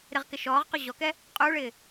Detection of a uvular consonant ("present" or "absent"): present